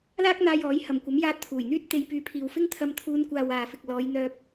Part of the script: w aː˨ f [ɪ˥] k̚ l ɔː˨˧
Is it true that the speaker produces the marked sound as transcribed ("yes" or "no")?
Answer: no